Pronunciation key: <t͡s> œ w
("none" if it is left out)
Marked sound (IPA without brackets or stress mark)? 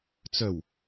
t͡s